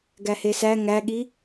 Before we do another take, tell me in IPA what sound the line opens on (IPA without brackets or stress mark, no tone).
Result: ɡ